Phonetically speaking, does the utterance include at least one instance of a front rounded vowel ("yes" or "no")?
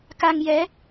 no